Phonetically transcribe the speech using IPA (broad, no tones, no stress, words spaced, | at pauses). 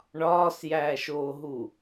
ɳɒːsjæːʃoːɦu